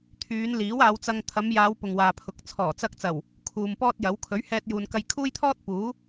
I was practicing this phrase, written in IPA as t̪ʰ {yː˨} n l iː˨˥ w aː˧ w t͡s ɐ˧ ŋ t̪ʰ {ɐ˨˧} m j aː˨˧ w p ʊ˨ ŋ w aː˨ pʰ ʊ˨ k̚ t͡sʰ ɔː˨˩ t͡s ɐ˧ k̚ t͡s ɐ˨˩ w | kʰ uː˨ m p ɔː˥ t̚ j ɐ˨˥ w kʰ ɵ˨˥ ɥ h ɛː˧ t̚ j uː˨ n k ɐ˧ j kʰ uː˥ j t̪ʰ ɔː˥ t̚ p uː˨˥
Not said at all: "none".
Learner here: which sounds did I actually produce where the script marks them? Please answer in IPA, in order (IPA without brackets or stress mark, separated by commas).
yː˨˧, ɐ˨˧